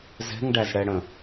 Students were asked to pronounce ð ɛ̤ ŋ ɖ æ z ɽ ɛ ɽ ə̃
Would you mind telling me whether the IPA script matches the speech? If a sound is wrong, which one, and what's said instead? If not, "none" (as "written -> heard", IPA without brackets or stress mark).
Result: ð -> z